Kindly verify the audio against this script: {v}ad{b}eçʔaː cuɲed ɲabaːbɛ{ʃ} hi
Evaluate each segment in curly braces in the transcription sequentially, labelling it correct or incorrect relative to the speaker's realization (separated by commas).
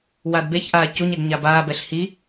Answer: incorrect, correct, incorrect